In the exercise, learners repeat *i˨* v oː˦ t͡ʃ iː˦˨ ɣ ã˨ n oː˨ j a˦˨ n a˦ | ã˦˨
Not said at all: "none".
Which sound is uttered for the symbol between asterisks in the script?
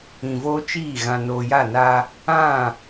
ĩ˨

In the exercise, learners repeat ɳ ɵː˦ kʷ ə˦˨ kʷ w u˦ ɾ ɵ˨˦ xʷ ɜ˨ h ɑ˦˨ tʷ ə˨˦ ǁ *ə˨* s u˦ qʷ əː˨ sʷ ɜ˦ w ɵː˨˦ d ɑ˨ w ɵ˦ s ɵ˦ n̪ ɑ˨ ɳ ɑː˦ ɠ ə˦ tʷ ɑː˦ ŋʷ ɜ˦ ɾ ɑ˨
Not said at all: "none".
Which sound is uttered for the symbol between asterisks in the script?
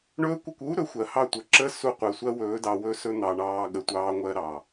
ə˦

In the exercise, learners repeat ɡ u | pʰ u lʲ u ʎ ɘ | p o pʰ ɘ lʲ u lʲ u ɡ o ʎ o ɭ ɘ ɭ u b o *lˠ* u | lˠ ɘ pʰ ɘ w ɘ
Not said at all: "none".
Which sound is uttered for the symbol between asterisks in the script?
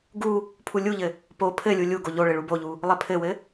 ʎ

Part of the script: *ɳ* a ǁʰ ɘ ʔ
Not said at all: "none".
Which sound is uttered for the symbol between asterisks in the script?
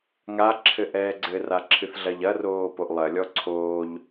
ŋ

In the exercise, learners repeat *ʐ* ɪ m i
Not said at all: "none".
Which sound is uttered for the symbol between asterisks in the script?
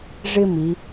ʐ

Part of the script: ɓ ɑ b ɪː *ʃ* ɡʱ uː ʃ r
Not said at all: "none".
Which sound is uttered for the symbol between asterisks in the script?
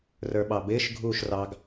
ʃ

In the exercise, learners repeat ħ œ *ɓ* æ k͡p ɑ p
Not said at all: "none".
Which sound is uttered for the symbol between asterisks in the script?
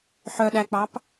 ɗ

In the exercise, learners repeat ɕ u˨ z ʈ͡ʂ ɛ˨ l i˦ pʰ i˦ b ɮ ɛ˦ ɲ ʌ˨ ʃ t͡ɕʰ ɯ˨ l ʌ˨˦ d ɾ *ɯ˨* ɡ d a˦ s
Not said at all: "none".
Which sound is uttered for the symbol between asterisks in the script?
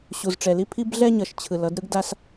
ɯ˦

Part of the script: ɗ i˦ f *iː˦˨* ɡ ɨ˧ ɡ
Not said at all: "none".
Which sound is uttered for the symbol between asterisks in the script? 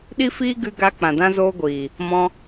iː˦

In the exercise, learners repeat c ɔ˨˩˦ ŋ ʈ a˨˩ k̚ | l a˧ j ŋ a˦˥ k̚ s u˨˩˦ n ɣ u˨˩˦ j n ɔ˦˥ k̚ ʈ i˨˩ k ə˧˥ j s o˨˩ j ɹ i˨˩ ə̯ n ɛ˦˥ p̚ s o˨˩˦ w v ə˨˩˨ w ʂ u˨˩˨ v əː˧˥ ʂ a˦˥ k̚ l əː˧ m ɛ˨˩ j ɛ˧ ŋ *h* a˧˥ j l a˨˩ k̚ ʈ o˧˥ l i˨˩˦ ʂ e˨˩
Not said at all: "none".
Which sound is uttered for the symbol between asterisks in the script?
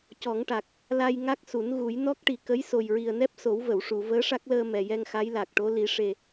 x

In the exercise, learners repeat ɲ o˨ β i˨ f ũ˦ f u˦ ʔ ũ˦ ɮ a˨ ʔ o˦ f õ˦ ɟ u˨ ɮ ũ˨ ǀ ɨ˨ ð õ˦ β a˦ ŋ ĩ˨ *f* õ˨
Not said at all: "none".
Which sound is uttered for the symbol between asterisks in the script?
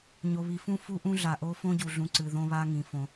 f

